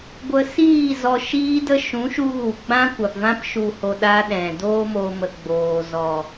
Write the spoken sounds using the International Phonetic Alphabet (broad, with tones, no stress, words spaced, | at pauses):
ɡʷə˧siː˦˨ zɔ˧ʃiː˦də˦ ʃũ˨˦ʃu˧ɣu˨ ɡ͡bã˦kʷa˨pvã˦p ʃu˨ho˨ ɗa˦ɗɛ̃˨ doː˦mo˧mə˨ ɡ͡boː˨zɔ˨